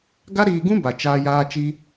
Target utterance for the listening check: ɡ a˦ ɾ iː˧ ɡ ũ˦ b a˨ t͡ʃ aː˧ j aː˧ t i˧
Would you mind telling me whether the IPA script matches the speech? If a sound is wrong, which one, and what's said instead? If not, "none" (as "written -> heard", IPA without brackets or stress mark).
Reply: t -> t͡ʃ